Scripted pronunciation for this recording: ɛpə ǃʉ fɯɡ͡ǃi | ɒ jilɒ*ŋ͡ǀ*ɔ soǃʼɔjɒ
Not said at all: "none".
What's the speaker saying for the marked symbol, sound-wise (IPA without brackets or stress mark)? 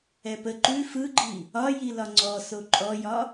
ŋ͡ǀ